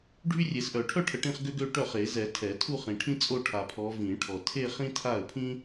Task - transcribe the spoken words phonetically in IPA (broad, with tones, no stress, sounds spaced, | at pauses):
ɖʱ y˥ rʲ e˨˩˦ s ʔ œ˨˩˦ ʈʰ œ˥˧ ʈʰ ə˨ ʈ ĩ˥˧ χ ɡ ø˥ ɡ ø˥˧ ʈ œ˥˩ χ e˨˩˦ z ɛ˨˩˦ tʰ ɛ˨˩˦ tʰ u˥˧ χ ĩ˨ ʈʰ ĩ˥ t͡sʼ o˥˧ ʈʰ a˨ pʰ ɔ˨˦ v ĩ˨˩˦ ʈʰ ɔ˨ tʰ e˥˧ χ ĩ˥ tʰ a˥˩ ə̯ pʰ ĩ˥